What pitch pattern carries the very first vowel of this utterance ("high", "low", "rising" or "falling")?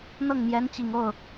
falling